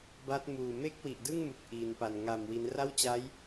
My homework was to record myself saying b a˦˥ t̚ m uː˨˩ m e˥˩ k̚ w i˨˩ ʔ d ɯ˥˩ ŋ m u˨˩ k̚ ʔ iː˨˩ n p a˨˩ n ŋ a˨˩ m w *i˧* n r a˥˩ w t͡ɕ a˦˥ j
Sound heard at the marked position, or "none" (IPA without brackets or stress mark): i˦˥